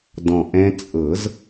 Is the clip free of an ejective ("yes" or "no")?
no